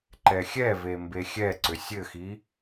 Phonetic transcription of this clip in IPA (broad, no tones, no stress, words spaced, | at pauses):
ǃɛxʲɛve mbexʲɛǀʏ sʲɘxi